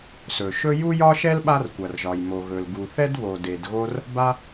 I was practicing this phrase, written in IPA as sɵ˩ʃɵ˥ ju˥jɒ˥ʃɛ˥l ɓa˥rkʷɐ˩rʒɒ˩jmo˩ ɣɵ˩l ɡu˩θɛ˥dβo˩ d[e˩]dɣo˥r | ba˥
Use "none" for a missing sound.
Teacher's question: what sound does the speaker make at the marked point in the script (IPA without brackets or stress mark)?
e˩